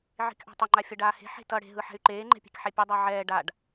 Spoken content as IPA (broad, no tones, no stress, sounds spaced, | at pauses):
ʕ i̤ k ʔ a̤ tˤ ʌ ŋ͡ǃ a fʲ ʌ ɖ aː h e̤ ħ e̤ t ʌ ɽ e̤ ɦ ɯ ħ ɛ̤ y̯ ǃ eː ŋ͡ǃ ɛ̤ pʲ e̤ k ħ ɛ pʲ ɯ dˤ a ʕ ɛː ɖ a ɖ